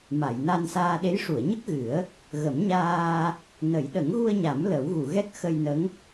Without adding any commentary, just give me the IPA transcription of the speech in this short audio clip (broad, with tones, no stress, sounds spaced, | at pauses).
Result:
m a˨˩˨ j n a˧ n s aː˧ ɗ e˧˥ j ʂ u˨˩˨ ə̯ ɲ ə˦˥ k̚ ɣ ɨ˨˩˦ ə̯ | ɣ ə˨˩˦ m ɲ aː˧ | n ə˨˩˦ j ɗ ə˨˩˦ ŋ ɣ u˧ ə̯ ɲ a˨˩˦ m l ə˨˩˦ w ɣ u˨˩˨ ɣ ɛ˦˥ k̚ x ə˧ j n ə˧˥ ŋ